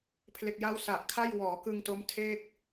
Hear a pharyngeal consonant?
no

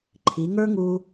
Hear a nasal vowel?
no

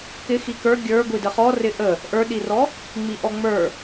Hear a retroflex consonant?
no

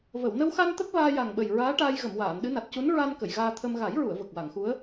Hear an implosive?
yes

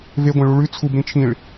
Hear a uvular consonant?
no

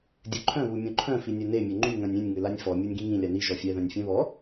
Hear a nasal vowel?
yes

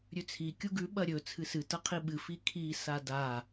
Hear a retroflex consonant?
no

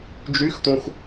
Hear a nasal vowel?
yes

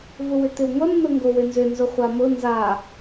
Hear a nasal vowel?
no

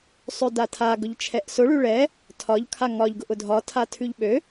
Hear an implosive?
yes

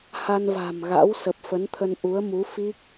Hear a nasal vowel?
no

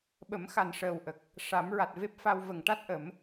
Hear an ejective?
no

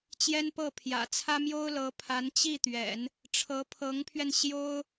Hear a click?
no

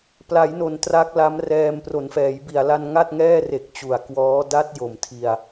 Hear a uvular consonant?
no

